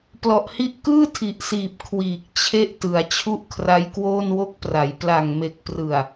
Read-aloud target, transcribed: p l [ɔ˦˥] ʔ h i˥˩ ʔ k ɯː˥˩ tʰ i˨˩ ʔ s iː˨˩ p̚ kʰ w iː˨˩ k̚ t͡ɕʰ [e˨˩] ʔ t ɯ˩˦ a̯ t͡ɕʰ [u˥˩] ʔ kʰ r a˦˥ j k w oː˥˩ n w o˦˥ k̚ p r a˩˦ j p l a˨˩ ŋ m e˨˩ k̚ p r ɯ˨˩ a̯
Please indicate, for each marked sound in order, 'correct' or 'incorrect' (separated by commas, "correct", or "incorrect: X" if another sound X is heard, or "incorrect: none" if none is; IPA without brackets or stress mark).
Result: incorrect: ɔ˨˩, incorrect: e˦˥, correct